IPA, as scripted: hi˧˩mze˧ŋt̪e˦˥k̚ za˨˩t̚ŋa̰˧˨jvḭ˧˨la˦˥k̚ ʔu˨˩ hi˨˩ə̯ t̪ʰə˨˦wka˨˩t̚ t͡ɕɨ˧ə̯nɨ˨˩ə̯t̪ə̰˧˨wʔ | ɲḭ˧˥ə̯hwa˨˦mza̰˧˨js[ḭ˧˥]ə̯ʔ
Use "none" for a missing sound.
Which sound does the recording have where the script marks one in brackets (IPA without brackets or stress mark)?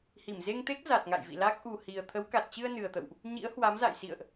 ḭ˧˨